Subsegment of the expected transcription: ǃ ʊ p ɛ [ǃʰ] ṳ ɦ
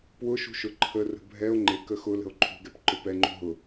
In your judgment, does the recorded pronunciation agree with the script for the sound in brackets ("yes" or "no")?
no